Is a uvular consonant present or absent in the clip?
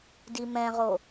present